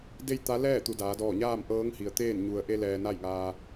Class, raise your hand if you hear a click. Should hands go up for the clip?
no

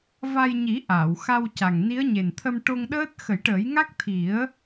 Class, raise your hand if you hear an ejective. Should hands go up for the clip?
no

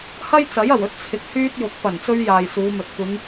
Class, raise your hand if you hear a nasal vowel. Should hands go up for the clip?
no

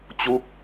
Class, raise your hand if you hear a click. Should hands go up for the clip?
no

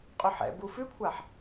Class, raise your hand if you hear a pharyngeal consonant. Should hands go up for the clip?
yes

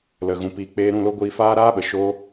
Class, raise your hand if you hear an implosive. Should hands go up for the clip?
yes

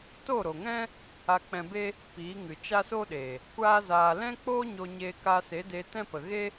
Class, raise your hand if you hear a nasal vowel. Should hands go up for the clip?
yes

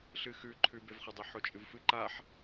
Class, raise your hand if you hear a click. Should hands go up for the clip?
yes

